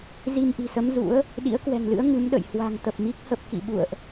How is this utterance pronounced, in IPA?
z i˧ m ʔ i̤˨˩ s ə˨˦ m z ṵ˧˥ ə̯ | ɗ ḭ˧˥ ə̯ k w ɛ̤˨˩ ŋ l ɨ̰˧˥ ə̯ ŋ ɨ˨˦ m ɗ ə̰˧˨ j h w a̤˨˩ ŋ t̪ ə˨˩ p̚ m i˦˥ k̚ h ə˦˥ p̚ k ḭ˧˨ ɓ ṵ˧˨ ə̯ ʔ

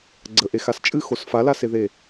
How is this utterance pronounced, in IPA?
ɡ͡ǀ ə ʔ e x a s t͡ʃʼ ɨ x o s f a l a s e ð e

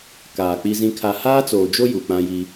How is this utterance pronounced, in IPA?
k aː˨ k͡p i˦ z ĩ˦ kʰ a˦ h aː˦ t͡s oː˨ d͡ʒ o˦ j u˨ k͡p ã˦ j i˦

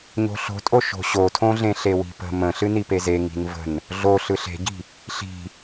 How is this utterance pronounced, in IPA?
ɲ o̤ ɬ o̤ tʼ o ʃ o̤ ɕ o tʰ õ ɮ ẽ ɬ e w i̤ p ə̤ m ə̃ ɬ ɨ n i p e z e ŋ i̤ n v ə̤ n | ɮ o ɬ ɯ ɬ e̤ ɟ i̤ | ɬ i̤

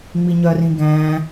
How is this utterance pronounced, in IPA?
ŋ͡m i ɲ œ r ĩ ɡ æ̃

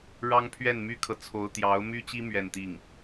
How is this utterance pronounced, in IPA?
ɻ ɑ˥ ŋ pʰ ɥ ɛ˥˩ n m y˥ kʰ ɤ˨ t͡sʰ o˧˥ ʊ̯ t̪ j ɑ˧˥ ʊ̯ m y˥ t͡ɕ i˥ m ɥ ɛ˥˧ n t̪ i˥˩ ŋ

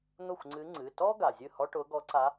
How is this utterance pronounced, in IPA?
n̪ ʊ˥˩ xʷ ŋ͡ǀ ɨ˧˥ ŋ͡ǀ ɨ˩˧˩ t ɔ˥ ɡ a˩ zʲ ɨ˥˩ h ɔ˥ ʈ ʊ˧˥ ɡ ɔ˧˥ ǀ a˧˥

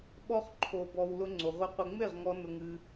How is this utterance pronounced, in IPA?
ɓ ɔ˦ χ ǃʰ o˧ b ɔ˧ w l ʊ˧ ŋ͡ǀ ʊ˨ ʁʷ ə˧ qʷ ə˧ ŋ͡m e˦˨ ʁ ŋ ɔ˧ n ʊ˧ ŋ ɨ˧

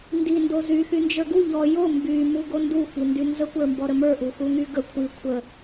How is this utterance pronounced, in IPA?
n d i n d o z y x y n d͡ʒ ə˞ ɡ u ʎ ɔ j o m b y m u ɡ o n d u x i n d y n z ə kʷ ə˞ m b ɔ ɾ ə m ə˞ ʔ u x u ŋ y ɡ ə kʷʰ i kʷʰ ə

